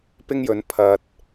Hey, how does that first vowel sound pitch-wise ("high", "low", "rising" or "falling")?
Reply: high